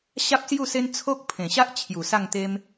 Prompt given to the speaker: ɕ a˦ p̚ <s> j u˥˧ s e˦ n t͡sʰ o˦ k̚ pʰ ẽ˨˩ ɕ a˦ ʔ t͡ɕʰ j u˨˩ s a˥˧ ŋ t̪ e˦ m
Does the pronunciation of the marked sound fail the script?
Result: no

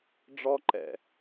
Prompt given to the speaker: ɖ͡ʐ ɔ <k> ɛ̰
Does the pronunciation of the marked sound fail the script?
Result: yes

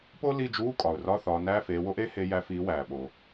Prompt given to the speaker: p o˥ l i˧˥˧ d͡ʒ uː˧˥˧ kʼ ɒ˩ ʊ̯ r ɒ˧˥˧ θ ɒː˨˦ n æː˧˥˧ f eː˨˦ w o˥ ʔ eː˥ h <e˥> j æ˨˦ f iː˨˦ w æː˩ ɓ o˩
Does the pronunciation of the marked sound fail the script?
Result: yes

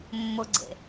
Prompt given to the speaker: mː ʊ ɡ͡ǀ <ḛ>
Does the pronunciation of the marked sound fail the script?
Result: no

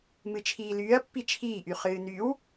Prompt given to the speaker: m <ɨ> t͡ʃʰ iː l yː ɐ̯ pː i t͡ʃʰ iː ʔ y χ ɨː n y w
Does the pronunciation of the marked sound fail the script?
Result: no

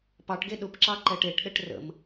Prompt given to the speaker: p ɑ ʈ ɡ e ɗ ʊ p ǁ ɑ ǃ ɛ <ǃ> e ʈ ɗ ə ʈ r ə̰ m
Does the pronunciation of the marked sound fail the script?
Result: yes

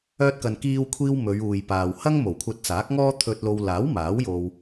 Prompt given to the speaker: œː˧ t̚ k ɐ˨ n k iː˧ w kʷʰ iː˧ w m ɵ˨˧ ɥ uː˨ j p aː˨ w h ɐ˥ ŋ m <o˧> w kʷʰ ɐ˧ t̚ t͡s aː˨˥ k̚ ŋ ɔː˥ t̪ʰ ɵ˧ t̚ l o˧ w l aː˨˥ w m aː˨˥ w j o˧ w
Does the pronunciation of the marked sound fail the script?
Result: yes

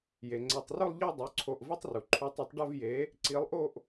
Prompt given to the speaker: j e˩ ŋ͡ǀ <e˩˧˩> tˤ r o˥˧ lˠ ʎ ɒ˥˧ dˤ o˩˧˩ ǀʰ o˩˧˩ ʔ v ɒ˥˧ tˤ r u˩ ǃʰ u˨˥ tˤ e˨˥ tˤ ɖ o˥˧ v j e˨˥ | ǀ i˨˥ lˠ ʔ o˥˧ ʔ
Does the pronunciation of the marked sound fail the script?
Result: no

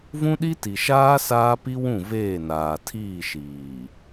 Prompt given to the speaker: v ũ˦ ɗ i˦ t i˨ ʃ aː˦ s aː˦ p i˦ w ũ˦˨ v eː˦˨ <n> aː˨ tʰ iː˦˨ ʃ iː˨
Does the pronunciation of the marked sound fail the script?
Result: no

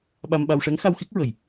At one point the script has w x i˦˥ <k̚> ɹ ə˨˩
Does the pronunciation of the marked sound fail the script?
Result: no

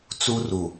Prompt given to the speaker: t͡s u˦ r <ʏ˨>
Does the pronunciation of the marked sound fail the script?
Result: yes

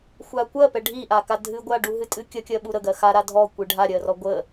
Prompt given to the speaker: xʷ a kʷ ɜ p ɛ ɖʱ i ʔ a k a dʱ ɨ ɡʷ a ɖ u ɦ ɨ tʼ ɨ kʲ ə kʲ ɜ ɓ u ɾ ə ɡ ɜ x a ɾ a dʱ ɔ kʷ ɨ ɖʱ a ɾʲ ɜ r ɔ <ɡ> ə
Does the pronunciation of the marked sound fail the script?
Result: yes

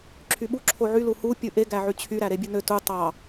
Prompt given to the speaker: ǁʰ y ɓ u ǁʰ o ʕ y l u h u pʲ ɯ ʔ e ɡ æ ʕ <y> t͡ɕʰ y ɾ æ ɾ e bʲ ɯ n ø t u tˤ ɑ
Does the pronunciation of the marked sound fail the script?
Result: no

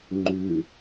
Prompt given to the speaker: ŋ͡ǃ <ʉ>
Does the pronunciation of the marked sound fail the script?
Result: no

